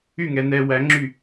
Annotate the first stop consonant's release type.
click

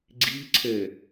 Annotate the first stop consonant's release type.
click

